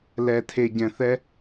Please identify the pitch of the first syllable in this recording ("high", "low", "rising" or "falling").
low